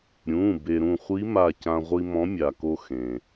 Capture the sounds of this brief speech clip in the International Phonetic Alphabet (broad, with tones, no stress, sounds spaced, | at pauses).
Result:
ɾʲ ũ˩˧˩ b e˩ ɾ ũ˧˩ χʷ i˧˥ m a˧˩ c ã˧ ʁʷ i˧ m ɔ̃˧˥ mʲ a˩ k o˧ x ẽ˩